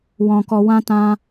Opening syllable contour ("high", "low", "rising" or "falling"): low